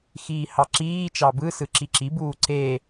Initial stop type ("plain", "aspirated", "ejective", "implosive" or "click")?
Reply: click